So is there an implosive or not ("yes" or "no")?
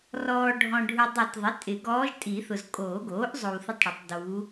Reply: no